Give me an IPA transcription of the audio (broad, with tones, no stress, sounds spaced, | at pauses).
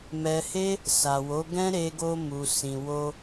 m ɛ˧ h e˦ | s a˨ w o˨˦ ɡ ɛ̃˦ ɾ e˧ ɡ o˧ m u˨ s ĩ˨ w o˧